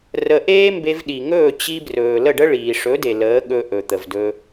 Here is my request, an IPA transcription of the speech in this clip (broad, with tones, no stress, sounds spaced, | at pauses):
r ə˧ ʔ eː˦ m b e˧ v ɗ i˨ ŋ ɵː˦˨ t͡ɕ i˧ b r ɵː˨ l ə˦˨ ɖ ə˦ ɭ iː˨ ʂ ɵ˨˦ d e˨ l əː˨˦ ɠ ɵ˧ ʔ ɵ˨ t̪ ə˨ v d ɵ˧